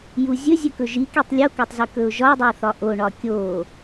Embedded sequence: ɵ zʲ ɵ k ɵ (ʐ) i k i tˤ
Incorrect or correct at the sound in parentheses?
incorrect: ʒ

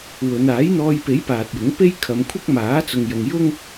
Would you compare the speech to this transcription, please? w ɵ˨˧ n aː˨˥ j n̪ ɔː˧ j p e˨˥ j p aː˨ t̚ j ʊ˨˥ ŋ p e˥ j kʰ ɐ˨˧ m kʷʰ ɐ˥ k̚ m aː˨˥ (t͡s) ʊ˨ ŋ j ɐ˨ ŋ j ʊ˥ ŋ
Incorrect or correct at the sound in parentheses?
correct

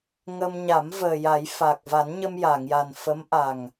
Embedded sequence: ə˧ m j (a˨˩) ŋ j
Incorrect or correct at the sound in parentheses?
incorrect: a˨˩˨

